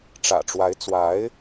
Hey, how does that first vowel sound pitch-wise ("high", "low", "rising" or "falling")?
low